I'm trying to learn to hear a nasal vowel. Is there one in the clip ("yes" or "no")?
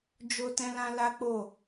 yes